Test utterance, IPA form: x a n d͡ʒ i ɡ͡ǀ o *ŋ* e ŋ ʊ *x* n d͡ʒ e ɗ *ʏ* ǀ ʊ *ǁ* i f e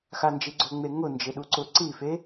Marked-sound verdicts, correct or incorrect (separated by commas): incorrect, incorrect, incorrect, incorrect